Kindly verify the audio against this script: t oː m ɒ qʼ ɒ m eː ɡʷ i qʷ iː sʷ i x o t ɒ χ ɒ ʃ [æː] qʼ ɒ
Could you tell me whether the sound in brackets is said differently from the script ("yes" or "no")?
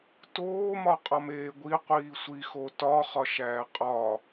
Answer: no